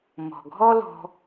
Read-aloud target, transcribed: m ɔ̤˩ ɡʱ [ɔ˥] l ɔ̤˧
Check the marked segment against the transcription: correct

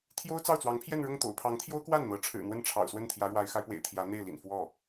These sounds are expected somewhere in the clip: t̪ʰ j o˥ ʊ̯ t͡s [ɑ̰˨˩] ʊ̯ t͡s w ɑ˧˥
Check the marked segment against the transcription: incorrect: ɑ˥˩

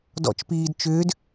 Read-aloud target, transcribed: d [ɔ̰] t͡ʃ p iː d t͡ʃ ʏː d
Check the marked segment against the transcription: correct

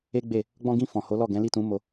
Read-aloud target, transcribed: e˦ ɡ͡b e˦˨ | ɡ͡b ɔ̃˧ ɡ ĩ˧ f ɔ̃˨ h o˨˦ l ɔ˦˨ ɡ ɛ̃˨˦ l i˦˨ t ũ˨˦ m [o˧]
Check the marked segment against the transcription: correct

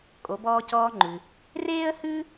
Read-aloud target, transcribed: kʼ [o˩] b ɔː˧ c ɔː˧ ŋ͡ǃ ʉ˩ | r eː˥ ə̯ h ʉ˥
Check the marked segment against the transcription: incorrect: o˩˧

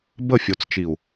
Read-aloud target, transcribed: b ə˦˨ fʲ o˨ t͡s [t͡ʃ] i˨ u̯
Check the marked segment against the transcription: correct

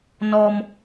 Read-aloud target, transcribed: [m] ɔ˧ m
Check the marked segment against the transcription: incorrect: n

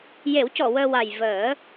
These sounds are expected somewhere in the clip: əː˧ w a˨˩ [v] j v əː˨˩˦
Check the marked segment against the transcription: incorrect: none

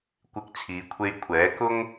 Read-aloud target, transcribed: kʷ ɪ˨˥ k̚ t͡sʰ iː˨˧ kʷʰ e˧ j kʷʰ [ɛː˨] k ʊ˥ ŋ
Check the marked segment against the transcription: incorrect: ɛː˨˥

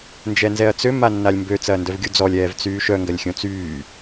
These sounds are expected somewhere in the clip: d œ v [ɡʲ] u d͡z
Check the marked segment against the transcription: correct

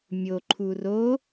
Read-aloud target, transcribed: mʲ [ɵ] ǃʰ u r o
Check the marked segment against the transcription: incorrect: o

